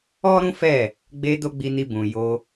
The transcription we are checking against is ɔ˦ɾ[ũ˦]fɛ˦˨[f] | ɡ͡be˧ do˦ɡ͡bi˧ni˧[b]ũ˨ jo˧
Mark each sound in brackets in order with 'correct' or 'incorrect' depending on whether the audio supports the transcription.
correct, incorrect: none, correct

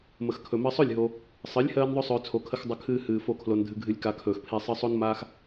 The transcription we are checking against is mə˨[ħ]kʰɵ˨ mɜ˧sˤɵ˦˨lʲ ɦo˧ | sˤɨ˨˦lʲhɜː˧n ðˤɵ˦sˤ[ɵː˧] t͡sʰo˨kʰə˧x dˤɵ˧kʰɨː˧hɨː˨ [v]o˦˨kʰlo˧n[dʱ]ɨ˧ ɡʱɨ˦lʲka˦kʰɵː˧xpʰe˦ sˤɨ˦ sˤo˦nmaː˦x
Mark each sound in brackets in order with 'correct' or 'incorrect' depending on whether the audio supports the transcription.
incorrect: x, correct, incorrect: f, correct

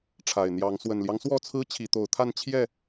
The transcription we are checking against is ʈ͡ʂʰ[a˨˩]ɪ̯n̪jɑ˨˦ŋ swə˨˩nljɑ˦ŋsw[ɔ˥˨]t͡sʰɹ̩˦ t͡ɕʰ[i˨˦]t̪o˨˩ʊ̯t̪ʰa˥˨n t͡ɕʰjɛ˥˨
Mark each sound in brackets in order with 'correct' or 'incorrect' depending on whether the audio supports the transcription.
correct, correct, correct

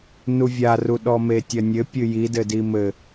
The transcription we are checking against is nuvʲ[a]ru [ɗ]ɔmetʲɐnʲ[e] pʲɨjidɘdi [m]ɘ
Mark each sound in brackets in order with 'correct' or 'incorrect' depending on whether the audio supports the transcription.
correct, correct, incorrect: ɘ, correct

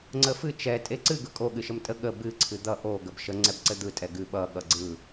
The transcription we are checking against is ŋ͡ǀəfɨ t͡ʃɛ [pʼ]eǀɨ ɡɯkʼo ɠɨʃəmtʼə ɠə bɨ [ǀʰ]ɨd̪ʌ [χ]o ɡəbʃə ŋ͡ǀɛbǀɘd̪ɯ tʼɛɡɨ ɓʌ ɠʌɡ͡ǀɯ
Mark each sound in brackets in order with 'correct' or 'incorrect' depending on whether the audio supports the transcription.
incorrect: tʼ, correct, incorrect: ʔ

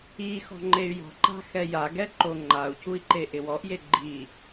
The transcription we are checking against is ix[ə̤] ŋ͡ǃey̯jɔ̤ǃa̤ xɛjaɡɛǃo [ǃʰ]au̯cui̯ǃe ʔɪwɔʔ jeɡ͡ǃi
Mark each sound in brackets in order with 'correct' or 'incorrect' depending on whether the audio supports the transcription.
incorrect: ɔ̤, incorrect: ŋ͡ǃ

